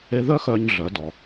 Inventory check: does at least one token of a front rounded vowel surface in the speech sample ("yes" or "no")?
yes